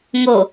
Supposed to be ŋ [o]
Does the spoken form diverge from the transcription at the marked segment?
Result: no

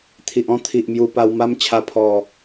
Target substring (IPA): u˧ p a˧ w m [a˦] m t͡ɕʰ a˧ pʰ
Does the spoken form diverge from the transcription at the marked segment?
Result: no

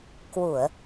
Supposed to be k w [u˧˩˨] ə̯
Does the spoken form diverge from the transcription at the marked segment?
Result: no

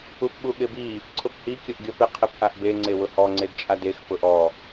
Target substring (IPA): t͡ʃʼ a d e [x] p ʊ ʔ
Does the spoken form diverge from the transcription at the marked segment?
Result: no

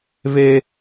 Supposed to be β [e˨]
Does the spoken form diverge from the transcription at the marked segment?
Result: yes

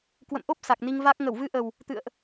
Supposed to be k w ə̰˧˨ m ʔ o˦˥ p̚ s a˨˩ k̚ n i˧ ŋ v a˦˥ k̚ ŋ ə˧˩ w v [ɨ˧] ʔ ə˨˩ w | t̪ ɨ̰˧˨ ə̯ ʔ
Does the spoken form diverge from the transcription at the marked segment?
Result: no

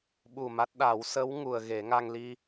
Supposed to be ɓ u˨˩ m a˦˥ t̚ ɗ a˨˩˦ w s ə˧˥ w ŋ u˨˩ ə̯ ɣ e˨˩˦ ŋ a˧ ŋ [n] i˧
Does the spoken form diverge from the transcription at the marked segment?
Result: yes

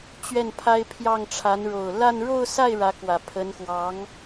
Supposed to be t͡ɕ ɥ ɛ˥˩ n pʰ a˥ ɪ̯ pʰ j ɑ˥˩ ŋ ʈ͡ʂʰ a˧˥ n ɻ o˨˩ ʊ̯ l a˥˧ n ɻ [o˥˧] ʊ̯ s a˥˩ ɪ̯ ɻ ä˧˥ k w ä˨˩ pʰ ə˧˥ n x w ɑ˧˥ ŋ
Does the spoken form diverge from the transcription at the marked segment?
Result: no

